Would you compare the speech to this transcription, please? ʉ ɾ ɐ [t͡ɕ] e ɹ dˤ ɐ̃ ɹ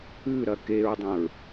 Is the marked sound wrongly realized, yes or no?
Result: yes